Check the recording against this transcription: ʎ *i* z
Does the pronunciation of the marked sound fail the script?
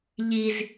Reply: no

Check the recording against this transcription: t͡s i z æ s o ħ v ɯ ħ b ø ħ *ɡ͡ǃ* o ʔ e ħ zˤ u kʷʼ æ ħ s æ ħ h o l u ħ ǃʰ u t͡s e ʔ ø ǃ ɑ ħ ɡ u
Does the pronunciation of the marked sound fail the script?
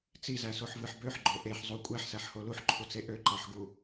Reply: no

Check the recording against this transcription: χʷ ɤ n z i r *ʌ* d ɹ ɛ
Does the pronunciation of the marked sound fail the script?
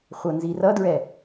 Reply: no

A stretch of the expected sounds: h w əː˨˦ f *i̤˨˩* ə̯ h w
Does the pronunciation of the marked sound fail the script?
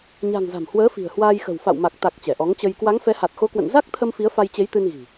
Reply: no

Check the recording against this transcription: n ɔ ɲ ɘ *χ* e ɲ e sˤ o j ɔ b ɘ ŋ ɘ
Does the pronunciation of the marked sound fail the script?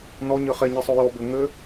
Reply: no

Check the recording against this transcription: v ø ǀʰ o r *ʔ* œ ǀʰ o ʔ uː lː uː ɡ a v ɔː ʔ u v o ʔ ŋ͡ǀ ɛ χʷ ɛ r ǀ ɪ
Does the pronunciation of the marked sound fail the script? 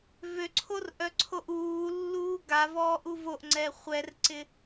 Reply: no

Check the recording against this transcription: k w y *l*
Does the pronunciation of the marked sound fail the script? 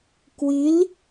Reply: no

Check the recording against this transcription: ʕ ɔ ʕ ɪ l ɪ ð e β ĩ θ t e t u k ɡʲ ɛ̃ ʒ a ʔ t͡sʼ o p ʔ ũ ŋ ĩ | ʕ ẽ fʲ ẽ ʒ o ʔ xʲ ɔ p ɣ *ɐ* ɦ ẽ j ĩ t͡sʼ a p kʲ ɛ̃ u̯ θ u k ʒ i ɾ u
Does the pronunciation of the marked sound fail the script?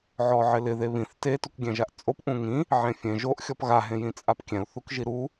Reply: yes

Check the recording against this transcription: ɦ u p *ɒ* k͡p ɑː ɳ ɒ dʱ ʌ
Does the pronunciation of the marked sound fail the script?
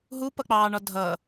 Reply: yes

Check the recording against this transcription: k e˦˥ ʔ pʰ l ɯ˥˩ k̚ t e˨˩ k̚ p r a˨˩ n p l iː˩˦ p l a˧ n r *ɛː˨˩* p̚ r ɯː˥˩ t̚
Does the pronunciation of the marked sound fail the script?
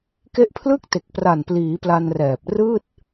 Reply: no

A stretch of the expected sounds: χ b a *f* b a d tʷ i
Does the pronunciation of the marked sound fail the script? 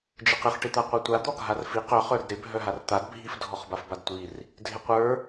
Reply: no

